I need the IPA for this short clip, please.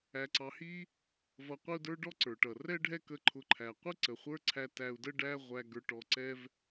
æ˧ ǀ ɑ˧ h i˥ | v ʌ˧ qʷ ɪ˥ u̯ d ə˞˥ ɖ ɔ˥ ǀ ə˞˩ ʈ ʌ˩ r ɛ˥ ɖʱ ɛ˥ k ə˧ ǃʰ ʊ˧ ǃʰ æ˩ qʷ ɪ˥ ǀ ə˩ χʷ ə˞˥ ǀʰ æ˧ t æ˧ u̯ d ə˥ ɖ æ˥ ʁʷ æ˧ ɡ ə˞˧ ʈ ɔ˧ ǀ ɛ˥ v

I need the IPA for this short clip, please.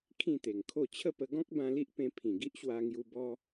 kʰ ĩ˥˧ t̪ e˨˩ ŋ kʰ o˥˧ t͡ɕʰ ə˥˧ p ə˧ ɡ ɔ̃˦ k̚ b ã˧ l i˦ ʔ p ẽ˧ pʰ ĩ˨˩ ɡ i˦ ʔ ɕ w a˧ ŋ j u˧ b ɔ˧

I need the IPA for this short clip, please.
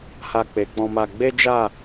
h a˧ k͡p e˨ k͡p ɔ̃˧ m a˧ ɡ͡b e˦ d͡ʒ a˦˨

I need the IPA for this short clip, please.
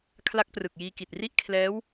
kʰ l a˦˥ k̚ p r ɯ˨˩ k̚ j iː˧ k i˨˩ t̚ r i˥˩ ʔ kʰ l ɛː˦˥ w

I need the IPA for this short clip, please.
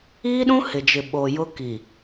iː˦ ɗ ũ˦ h ɪ˨ d͡ʒ ɪ˨ ɓ oː˨ j ʊ˦ k i˨

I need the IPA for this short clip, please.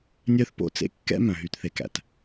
nʲ œ˦ θ p o̰˦ t͡s ḛ˦ kː ɛ̰˦ m œ̃˨ ɦ y˨ t θ e˨ k æ̰˨ t

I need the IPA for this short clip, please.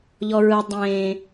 ʎ ɔ ɹ ɯ dˤ ẽː

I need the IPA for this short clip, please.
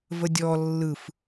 v ə dʲ ɔ lː ɯ f

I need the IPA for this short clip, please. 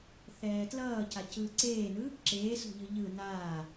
θ ɛː t l ʌː c a c ɯː ǀ eː n ɯ | ǁ eː s o̤ ʎ ɯ ʎ ɯ n aː

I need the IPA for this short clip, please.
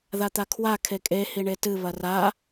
ð a t̪ a kʰ w a kʰ e kʼ e h i ɳ e t ɨ β ɐ r a

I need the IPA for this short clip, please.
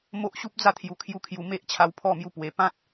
m o˦ ʔ ɕ u˦ p̚ d͡z a˥˧ t̪ʰ j u˨˩ kʰ j u˧ kʰ j u˨˩ m e˦ ʔ t͡ɕʰ a˧ w pʰ ɔ˥˧ m j u˧ p w e˨˩ p ã˦ t̚

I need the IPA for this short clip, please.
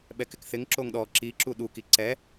ɓ ɛ k ɪ k θ ɪ ŋ ǁ o ŋ ɗ ɔ ǁ i ǁ u ɗ u k i ǀ ɛ

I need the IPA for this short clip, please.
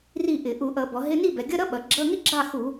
r i˥˨ ʔ ɪ˧˩˧ ʔ u˧˩˧ ʔ ʌ˧˩˧ b ɔ˩˧ ɦ ɪ˧˥˧ n i˥˨ b ɛ˩˧ ɡʲ ʌ˧˥˧ ɾ ʌ˥ ɓ ʌ˩˧ ɡ͡ǁ ʌ˧˥˧ ŋ ɪ˥ ɡ͡ǁ ɑ˥˨ x u˧˩˧

